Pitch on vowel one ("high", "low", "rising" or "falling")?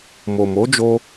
low